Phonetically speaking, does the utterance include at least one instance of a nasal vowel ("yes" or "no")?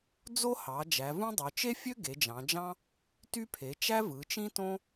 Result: yes